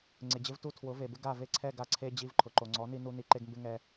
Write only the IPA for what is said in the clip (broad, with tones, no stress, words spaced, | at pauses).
ŋ͡ǀɪ˨d͡ʑɪ˦v tu˦˨tʰwʊ˨˦ve˨bɪ˦ ɡa˦˨ve˦ǀʰɛ˦˨ ɡa˦ǀʰe˦ d͡ʑi˧vǃʰʊ˨ǃo˨ ŋ͡ǀɔ˨˦ni˧ nu˧ ni˧ǃe˦ɡmbɪ˦ŋɛ˧